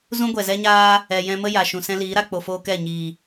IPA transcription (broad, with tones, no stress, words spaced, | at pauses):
zũ˦ɡʷɛ˨zɛ˦ɲaː˦ | ɛ˨jɛ̃˧ mə˦ ja˨ʃũ˨ sɛ̃˦liː˨˦ɾa˧ k͡po˨foː˧ kɛ˦˨ ɲiː˨